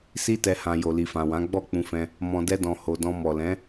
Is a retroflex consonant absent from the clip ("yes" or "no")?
yes